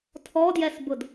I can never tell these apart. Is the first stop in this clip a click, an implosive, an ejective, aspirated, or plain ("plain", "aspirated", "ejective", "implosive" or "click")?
aspirated